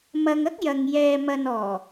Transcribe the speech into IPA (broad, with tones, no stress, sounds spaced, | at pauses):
m ɐ˧ ŋ ɐ˥ k̚ j ɐ˨ ŋ j ɛː˨ m ɐ˨ n ɔː˨˩